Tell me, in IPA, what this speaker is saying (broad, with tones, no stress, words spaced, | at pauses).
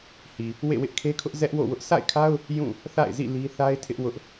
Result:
hi˨ | wḛ˦˨wɪ˦ʔkʰe˦kʰʊ˦ʔ zɛ˦ʔwo̰˦˨wʊ˦ʔ sʰa̰˦˨ɪ̯kʰa˦ʊ̯ | jũ˦˨ | θa̰˦˨ɪ̯zḭ˦˨ li˦ θa˦ɪ̯ tʰɪ˦ʔ wʊ˦ʔ